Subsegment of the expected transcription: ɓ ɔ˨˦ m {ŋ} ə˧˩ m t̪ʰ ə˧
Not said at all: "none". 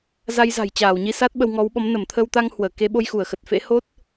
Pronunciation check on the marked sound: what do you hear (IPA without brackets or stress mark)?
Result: n